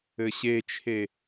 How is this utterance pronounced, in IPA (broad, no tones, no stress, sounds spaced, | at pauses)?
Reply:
ɘ ɕ e t͡ʃʰ e